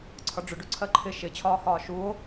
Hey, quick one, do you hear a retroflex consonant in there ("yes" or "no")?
yes